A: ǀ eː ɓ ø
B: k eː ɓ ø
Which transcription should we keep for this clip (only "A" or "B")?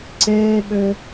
A